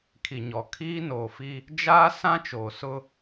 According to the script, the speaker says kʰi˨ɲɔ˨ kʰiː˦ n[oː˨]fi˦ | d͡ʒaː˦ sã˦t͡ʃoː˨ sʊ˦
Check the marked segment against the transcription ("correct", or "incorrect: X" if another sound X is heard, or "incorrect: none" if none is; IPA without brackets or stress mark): correct